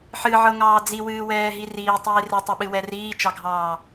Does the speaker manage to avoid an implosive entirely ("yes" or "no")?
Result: no